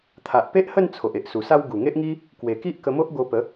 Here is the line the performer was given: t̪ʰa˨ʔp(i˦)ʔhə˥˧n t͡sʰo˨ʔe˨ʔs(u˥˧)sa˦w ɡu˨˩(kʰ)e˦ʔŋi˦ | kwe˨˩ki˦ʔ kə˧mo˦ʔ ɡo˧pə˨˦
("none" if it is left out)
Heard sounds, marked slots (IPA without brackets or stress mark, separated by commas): e˦, u˨˩, ŋ